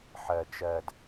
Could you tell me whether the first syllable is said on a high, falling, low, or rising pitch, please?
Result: low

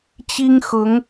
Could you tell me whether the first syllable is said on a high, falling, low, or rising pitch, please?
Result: high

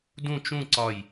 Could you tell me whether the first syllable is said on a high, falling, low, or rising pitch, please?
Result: falling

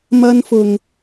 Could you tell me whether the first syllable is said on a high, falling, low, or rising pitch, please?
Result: high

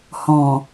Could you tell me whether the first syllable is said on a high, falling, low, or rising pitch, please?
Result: low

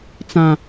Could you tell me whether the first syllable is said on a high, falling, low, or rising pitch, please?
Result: low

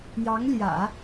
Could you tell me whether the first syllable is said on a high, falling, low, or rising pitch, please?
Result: rising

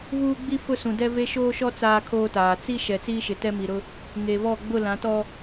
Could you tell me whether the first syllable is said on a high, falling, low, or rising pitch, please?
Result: high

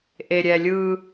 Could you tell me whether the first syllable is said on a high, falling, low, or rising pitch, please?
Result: low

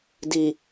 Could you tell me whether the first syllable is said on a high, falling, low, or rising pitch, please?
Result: low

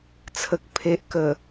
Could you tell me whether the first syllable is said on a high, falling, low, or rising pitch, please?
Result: low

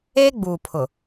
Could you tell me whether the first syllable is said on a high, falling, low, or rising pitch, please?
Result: high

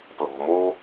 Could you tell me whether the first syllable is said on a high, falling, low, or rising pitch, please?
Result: low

